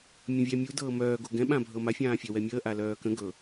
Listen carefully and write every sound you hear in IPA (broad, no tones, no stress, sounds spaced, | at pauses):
mʲ ə̃ vʲ æ mʲ u d ɤː m œː ɡ o ɡ ɛ̃ ɓ ã bʱ ɤ m a fʲ ãː fʲ œ w ɛ mʲ əː ʔ a l œː k ə̃ ɡ ɤ